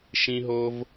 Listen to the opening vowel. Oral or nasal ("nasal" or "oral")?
nasal